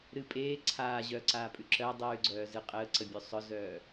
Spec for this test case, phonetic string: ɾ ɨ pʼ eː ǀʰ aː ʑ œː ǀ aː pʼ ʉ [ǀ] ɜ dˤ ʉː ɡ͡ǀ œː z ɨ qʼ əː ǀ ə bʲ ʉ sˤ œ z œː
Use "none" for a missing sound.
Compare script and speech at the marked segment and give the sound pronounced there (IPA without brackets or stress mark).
ǁ